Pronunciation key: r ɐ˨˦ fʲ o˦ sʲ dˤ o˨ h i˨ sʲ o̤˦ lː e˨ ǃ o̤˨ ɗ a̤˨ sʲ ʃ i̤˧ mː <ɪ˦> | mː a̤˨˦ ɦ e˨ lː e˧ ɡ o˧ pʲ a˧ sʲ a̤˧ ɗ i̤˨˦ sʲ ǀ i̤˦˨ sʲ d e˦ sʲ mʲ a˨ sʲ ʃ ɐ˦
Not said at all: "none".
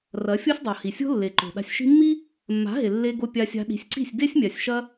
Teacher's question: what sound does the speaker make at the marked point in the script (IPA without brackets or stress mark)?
i˦